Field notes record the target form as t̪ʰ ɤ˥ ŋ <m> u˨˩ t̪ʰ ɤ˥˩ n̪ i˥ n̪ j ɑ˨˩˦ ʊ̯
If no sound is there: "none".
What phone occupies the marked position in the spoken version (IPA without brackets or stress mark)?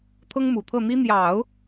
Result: m